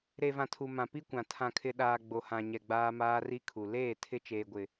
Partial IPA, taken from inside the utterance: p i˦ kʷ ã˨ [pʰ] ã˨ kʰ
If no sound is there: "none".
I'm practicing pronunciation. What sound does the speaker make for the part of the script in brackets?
tʰ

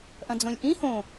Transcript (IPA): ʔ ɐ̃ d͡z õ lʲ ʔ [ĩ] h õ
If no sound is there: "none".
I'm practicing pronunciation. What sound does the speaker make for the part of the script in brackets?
ĩ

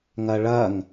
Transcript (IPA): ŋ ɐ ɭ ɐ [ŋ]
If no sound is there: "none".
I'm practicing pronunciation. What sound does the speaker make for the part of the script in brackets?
ŋ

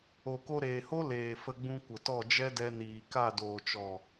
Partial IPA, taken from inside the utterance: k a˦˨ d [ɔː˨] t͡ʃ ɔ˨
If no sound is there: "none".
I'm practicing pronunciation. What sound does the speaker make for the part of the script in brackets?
oː˨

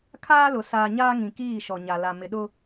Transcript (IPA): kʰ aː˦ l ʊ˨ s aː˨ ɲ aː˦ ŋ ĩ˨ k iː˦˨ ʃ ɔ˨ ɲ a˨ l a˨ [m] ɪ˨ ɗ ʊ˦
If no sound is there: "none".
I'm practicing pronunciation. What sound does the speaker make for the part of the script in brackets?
m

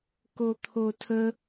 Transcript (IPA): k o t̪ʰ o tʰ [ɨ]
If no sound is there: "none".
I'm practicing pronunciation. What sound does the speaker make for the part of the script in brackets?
ə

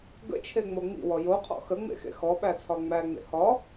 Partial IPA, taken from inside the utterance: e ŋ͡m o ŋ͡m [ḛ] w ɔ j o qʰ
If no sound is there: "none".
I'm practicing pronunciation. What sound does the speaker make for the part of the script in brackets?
ḭ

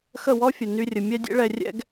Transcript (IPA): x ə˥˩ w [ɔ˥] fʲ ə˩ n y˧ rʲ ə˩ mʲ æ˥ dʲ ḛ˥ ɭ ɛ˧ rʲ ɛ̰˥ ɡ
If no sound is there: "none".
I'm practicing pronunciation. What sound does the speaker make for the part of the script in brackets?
ɔ˥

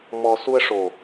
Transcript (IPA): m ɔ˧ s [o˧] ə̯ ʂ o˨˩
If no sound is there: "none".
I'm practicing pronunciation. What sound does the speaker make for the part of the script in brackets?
u˧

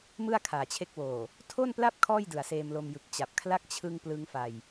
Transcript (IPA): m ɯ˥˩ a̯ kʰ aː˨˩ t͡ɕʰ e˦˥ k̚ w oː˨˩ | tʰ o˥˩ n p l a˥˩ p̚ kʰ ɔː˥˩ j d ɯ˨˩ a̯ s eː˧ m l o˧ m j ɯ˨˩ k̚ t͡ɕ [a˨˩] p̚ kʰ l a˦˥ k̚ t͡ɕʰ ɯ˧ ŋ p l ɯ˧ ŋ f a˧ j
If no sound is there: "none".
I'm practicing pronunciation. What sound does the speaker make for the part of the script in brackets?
a˨˩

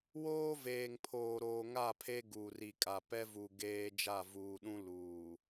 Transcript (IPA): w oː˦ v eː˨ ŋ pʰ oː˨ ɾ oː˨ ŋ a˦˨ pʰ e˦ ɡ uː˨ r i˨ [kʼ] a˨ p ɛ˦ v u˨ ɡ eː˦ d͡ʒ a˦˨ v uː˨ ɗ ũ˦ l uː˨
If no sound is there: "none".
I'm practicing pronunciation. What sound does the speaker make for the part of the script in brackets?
kʼ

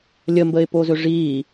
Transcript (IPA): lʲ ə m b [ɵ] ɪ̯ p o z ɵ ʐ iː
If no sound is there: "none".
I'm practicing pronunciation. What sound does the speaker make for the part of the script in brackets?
ə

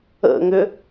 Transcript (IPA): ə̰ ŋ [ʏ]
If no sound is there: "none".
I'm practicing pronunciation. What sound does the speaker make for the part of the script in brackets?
ʏ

